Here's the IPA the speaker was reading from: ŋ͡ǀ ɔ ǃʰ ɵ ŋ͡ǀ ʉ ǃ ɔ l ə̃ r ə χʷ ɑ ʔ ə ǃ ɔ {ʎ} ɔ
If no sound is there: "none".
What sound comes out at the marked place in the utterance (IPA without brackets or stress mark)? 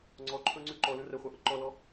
l